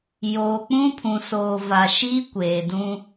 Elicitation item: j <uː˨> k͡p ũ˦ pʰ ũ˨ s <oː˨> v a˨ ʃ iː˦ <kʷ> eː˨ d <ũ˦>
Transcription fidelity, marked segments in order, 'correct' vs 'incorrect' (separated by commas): incorrect, correct, correct, correct